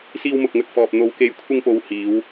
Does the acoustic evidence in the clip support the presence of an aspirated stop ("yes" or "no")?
yes